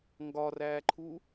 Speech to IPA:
ŋ ɡ ɒ r æː ǃʰ u

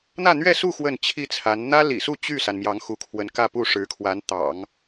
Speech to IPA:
n̪ ä˥˧ n̪ ɥ ɛ˥˧ s u˥˧ x w ə˥˩ n t͡ɕʰ i˥ t͡sʰ a˧˥ n n̪ ä˥ l ḭ˨˩ s u˥˧ t͡ɕ y˥˩ s a˩ n m j ɑ˧˥ ŋ x u˧˥ kʰ w ə˧˥ n k ä˥˧ p u˥˩ ʂ ɻ̩˧˥ kʰ w a˧˥ n t̪ ɑ̰˨˩˦ ŋ

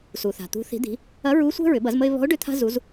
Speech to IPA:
s u˩ θ a̤˩ t̪ ṳ˩˧ θ i̤˩˧ d̪ i̤˩˧ | ɐ˧˥ ɹ u˧˥ sʷ ɛ̤˥ ɹ ʏ˩˧ b ɐ˩˧ z m ə˧ ɪ̯ β ɔ̤˧˥ ʊ̯ ɖ ʏ˧˥ t̪ʰ a̤˧ z u˩˧ z

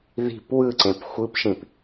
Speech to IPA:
ð i̤ p w ɯ ǀ ẽ p xʷ ɯ p ʃ ĩ p

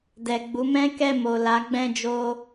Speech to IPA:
d ɛ˨ ɡ͡b u˨˦ m ɛ̃˦ k ɛ˦˨ m o˨ l a˨˦ ɡ͡b ɛ̃˦˨ d͡ʒ o˧

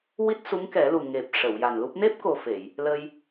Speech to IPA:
w i˦˥ t̚ s u˧˥ ŋ k ɛ˨˩˦ l u˨˩ ŋ e˨˩ p̚ ʂ ə˨˩˨ w j a˨˩ n l u˦˥ p̚ n e˦˥ p̚ k o˨˩ f e˨˩˨ j | l ə˧ j

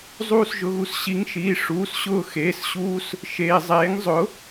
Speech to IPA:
zˤ uː˦˨ s ʒ ʊ˩˧˩ ɣ u˦˨ s ɕ i˩˧˩ ŋ ʃ iː˩˧˩ ʂ uː˩˧˩ s ɕ ʊː˦˨ x eː˩˧˩ s ɕ uː˥ s | ʃ eː˩ zˤ eː˩˥ ŋ zˤ ʊ˩˥

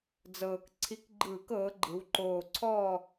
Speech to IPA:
d͡z ɤː˨˩ k ǀʰ i˨˥ k ɡ͡ǃ ɯː˧˩˧ k ɤː˩˧ ɡ͡ǃ ɯ˩˧ w ǃ oː˨˩ ǀʰ ɔː˦˨

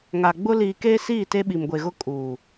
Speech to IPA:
ŋ a˨ ɡ͡b ʊ˦ l iː˨ k eː˦ s iː˦˨ t e˦ ɓ i˨ m ɡʷ e˨ ɣ ʊ˦ kʼ uː˨

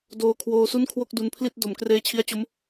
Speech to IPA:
d oː˧ kʰ w oː˧ s u˥˩ n kʰ w o˥˩ k̚ d u˧ n pʰ l i˥˩ t̚ d o˩˦ m k r eː˦˥ t͡ɕʰ i˦˥ a̯ t͡ɕ o˦˥ m

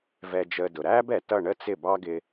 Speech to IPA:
v ɛ˧ d͡ʒ əː˧ d ʊ˩ ɾ æː˥ b ɛ˩ t ʌ˥˩ ɳ ə˥ t͡s ɪ˥˩ b ɑ˥ ɡ ɪ˧

